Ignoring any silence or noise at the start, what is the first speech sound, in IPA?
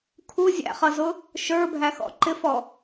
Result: kʰ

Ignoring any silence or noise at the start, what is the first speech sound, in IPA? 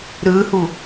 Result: ɾ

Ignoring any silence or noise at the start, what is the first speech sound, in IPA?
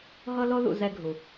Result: ɦ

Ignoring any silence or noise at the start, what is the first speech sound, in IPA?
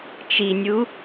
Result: t͡ʃ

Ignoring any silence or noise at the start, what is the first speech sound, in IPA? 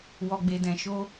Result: w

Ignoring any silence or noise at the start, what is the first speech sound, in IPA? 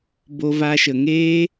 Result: b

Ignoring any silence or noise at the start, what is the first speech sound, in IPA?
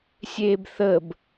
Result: sʲ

